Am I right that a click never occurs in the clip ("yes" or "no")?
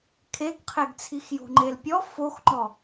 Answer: no